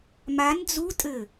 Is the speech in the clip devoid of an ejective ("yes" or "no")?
no